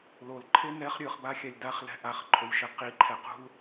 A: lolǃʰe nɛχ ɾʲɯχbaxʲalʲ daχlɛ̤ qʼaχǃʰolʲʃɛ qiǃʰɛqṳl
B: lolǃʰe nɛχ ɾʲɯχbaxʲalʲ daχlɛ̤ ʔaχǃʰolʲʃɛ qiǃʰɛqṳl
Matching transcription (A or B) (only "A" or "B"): B